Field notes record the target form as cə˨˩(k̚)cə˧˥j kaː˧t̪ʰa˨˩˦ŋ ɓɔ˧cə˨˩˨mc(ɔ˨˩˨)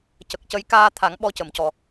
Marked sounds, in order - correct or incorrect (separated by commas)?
correct, correct